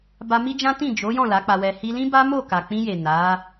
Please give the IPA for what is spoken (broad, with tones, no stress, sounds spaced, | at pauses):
b a˧ m i˦ d͡ʒ ã˦ t ĩ˦˨ d͡ʒ o˨˦ j ɔ̃˦˨ l a˨˦ k͡p a˧ w ɛ˧ h i˧ l ĩ˦ b a˦ m o˦˨ k a˨ k͡p ĩ˧ j e˨ n a˨˦